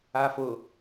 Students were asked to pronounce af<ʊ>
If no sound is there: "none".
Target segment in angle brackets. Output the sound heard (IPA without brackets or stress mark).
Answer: ʊ